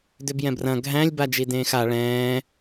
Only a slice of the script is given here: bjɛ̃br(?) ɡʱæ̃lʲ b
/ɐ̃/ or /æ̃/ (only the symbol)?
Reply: ɐ̃